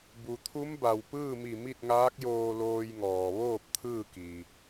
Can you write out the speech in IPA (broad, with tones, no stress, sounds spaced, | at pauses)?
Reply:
b u˩ t̪ʰ u˧˥ m b a˩ w p ɯː˥˨ m i˧˩ m i˥˨ t̚ ŋ aː˧˥ k̚ j oː˧ l oː˧ j ŋ ɔː˩ ʋ oː˥˨ p̚ t̪ʰ ɯː˥˨ k i˩